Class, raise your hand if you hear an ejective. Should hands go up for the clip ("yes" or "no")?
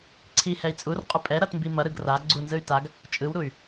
yes